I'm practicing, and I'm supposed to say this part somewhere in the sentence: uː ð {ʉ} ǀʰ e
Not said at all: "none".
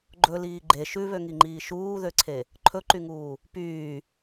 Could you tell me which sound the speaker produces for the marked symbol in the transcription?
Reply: ø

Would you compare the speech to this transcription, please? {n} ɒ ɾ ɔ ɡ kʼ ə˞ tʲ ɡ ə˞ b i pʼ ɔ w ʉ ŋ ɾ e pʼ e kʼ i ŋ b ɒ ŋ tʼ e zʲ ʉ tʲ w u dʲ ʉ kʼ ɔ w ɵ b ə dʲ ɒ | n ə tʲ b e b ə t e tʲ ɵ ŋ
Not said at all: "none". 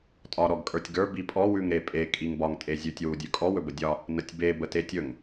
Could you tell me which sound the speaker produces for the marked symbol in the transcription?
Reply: tʼ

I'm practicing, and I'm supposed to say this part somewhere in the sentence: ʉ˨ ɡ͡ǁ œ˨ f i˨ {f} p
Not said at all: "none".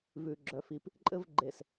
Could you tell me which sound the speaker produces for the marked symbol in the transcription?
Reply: none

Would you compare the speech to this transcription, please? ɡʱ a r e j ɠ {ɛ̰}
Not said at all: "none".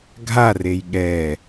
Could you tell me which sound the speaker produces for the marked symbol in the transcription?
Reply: ɛ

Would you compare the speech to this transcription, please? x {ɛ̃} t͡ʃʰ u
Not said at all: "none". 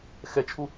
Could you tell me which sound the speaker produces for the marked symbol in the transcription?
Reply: ɛ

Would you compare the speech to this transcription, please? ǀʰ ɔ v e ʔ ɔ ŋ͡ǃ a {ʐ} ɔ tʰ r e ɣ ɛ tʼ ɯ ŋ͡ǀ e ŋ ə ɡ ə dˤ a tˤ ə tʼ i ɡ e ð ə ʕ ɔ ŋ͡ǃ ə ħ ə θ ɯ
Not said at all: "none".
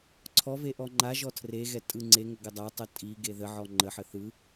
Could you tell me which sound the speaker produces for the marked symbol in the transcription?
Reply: ʒ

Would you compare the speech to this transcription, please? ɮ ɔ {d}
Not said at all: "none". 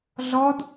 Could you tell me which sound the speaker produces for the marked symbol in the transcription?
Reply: d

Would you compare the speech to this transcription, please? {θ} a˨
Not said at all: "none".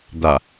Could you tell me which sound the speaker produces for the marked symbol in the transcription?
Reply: d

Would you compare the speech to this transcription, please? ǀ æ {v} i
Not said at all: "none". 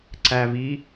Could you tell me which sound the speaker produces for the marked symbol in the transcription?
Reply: v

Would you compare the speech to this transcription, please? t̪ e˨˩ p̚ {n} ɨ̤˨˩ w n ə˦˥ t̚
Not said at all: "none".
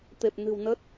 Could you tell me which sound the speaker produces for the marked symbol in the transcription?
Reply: n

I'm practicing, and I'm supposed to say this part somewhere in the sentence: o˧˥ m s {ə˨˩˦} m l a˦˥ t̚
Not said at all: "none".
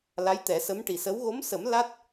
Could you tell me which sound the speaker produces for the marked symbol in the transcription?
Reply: ə˨˩˦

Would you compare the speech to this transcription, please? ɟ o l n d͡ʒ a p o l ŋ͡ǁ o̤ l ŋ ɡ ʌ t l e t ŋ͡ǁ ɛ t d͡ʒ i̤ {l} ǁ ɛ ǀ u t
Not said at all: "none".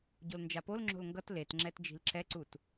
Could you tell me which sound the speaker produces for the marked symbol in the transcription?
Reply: l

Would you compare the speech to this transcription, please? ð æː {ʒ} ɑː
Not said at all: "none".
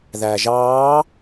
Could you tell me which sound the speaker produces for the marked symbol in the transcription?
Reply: ʒ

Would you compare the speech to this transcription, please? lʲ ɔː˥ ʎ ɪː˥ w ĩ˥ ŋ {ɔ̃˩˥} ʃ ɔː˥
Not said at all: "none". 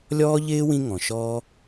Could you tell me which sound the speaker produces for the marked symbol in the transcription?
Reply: ɔ̃˩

